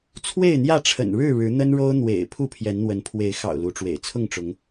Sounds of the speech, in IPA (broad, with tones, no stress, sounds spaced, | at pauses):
t͡sʰ w e˥˨ ɪ̯ n̪ j ä˥˨ ʈ͡ʂʰ ə̰˨˩ n ɻ ɻ̩˥˨ ɻ ɻ̩˨˦ n̪ ə˦ n ɻ o˦ ʊ̯ n̪ w ḛ˨˩ ɪ̯ pʰ u˥˨ pʰ j ɛ˨˦ n n̪ w ə˨˦ n pʰ w e˨˦ ɪ̯ x ɑ̰˨˩ ʊ̯ l u˨˦ ʈ͡ʂ w ḛ˨˩ ɪ̯ t͡sʰ ʊ˥˨ ŋ ʈ͡ʂ ʊ˨˦ ŋ